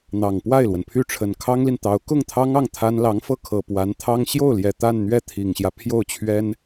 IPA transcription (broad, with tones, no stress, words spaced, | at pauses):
n̪ɑ˨˩ŋ pwa˥˩ɪ̯lwə˩npʰy˥˩ʈ͡ʂʰə˨˩n kʰɑ˥ŋli˨nt̪ɑ˧˥ʊ̯ kʊ˥˩ŋt̪ʰɑ˥ŋɑ˥˩ŋ t̪ʰa˥n lɑ˧˥ŋfɤ˥˩kʰɤ˨˩ pwa˧˥nt̪ʰɑ˥ŋ ɕjo˥˩ʊ̯ljɛ˨˩ t̪a˥˧nn̪ɥɛ˥˩t̪ʰi˨˩ŋɕjä˦ pʰjo˥˩ʊ̯t͡ɕʰɥɛ˥n